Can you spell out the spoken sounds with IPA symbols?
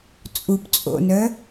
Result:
t͡sʼ u p t͡sʼ o̰ n œ

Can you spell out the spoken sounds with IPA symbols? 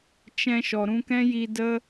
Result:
t͡ʃ ɛ̃˧ ʃ ɔ˨ ɾ ũ˧ k ɛ̃˦ j i˧ d ə˦

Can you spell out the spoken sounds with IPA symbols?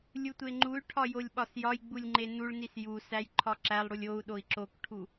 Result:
lʲ u tʷ e ŋ͡ǃ u y̯ ʈʰ ɒ j o lʲ ɓ ɒ s j ɒ j ɡ͡b u lʲ ŋ͡ǃ e n u ɭ n i s j u s æ j ǃʰ ɒ ǁ æ lˠ ɽ u lʲ o u̯ ɗ o i̯ ǁ o k ʈʰ u

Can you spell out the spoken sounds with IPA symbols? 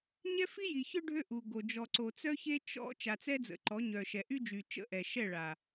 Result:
ɲ ɛ˦ f i˦ j i˨ ç œ˦ ɖʱ ø˦ ʔ u˨ ɡ o˨ d͡ʒ ɔ˨ ǀ o˨ t͡s œ˦ ç e˦ t͡ʃ ɔ̰˦ t͡ʃ a˨ t͡s ɛ˦ d͡z ə̰˨ ǃ ɔ˨˦ ɲ œ˨ ʃ ɛ˨ ʔ y˦ d͡ʒ y˨ t͡ʃ ə̰˦˨ ʔ ɛ˨ ʃ ɛ˦˨ ɭ a˨

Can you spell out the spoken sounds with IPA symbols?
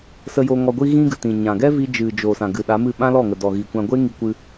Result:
s ə˧ j o˧ ŋ ɔ˧ ɡʷ i˦ ɣ ĩ˦ ɡ ɨ˨ t ĩ˨ ɲ ã˨ ɡ ɛ˦ v i˧ d͡ʒ ɨ˨ d͡ʒ o˨ s ã˨ ɡ ɨ˨ ɗ a˨˦ m ɨ˦˨ ɓ ã˦ l ɔ˦˨ ŋ ə˨ d ɔ˨ ɣ i˨ kʷ ã˧ ɡʷ e˦ ŋ i˧ kʷ ɨ˧

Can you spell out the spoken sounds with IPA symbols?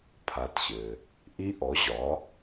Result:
pʰ a˩˧ t ɕ ɘ˩ | ʔ i˧ ʔ ɔ˩˧ ʑ ɒ˩˧

